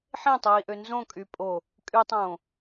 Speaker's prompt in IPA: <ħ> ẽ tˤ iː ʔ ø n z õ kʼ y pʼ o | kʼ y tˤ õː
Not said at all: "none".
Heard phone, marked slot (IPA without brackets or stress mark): ħ